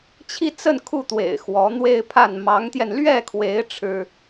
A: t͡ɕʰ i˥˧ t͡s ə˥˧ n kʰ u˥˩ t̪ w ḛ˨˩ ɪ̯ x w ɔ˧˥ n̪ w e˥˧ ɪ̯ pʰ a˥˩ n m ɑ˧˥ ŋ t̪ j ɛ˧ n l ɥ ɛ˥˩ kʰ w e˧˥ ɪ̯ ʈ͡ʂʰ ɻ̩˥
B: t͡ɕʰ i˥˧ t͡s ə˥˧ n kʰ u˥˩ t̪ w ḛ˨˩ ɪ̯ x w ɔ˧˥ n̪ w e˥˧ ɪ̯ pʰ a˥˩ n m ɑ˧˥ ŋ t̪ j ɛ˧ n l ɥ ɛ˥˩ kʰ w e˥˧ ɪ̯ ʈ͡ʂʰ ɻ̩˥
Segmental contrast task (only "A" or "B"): A